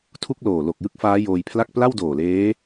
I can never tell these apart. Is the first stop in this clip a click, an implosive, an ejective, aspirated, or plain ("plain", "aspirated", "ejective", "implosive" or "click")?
aspirated